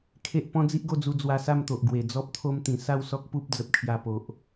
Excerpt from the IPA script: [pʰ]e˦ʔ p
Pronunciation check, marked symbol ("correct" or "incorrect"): incorrect